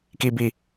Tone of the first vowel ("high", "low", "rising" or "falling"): high